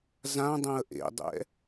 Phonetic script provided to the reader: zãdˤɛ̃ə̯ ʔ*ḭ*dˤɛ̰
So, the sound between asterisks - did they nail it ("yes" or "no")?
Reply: no